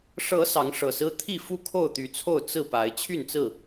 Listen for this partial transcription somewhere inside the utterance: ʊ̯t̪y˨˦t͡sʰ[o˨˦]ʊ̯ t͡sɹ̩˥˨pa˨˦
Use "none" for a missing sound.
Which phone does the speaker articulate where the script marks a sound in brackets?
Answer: o˥˨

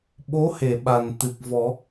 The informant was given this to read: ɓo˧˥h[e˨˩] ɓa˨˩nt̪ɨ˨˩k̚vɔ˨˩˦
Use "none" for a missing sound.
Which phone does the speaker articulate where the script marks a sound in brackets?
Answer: e˨˩˨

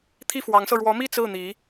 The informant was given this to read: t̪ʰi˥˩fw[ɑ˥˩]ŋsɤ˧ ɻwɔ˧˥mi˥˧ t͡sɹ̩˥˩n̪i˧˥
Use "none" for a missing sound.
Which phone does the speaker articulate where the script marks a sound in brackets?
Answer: ɑ˧˥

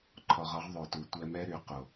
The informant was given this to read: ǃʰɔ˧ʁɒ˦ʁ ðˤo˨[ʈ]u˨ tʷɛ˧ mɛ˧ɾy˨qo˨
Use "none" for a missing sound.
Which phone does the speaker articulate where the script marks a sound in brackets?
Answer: t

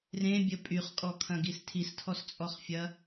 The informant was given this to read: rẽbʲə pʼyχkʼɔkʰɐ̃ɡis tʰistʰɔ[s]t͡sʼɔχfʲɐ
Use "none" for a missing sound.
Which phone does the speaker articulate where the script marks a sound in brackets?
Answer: s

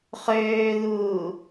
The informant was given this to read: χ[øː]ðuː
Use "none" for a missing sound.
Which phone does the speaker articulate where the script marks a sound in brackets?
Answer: øː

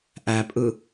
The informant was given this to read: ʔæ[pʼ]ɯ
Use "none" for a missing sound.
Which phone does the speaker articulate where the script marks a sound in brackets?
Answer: pʼ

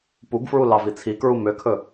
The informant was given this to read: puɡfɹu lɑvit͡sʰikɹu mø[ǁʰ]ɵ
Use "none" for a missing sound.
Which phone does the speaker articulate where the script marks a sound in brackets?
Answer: kʰ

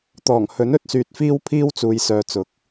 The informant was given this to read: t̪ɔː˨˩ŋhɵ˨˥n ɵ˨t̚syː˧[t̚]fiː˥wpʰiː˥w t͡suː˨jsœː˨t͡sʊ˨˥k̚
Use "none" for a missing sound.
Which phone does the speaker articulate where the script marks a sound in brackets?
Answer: t̚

